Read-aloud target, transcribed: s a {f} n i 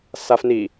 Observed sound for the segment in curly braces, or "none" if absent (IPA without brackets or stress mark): f